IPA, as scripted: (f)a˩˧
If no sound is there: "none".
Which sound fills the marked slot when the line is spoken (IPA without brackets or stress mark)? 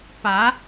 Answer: p